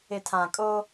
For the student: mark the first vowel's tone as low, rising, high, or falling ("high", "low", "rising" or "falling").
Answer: low